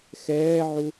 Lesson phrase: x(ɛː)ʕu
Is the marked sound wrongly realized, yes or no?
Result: no